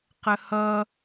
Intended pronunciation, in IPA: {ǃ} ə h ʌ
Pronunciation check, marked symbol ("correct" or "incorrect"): incorrect